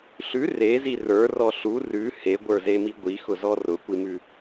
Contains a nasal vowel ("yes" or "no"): no